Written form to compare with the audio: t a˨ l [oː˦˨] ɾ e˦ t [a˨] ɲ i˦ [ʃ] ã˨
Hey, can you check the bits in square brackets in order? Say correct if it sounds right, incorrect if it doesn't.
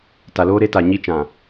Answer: incorrect, correct, incorrect

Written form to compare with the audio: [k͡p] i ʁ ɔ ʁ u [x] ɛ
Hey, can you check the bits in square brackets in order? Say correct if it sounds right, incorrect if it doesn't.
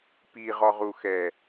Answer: incorrect, correct

